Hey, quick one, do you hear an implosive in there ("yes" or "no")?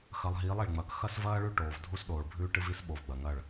yes